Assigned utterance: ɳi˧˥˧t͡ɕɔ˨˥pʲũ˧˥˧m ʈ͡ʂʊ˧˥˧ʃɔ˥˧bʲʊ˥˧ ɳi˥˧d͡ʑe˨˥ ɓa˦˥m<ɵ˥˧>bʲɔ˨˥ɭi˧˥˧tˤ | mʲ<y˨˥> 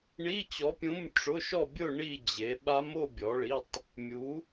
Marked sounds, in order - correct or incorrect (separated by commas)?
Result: incorrect, incorrect